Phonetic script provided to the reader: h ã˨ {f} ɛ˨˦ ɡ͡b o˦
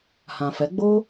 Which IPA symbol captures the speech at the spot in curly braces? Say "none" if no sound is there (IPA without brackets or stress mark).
f